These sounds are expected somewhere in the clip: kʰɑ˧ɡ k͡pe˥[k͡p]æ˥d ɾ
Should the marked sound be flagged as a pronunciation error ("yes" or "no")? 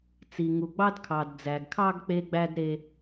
yes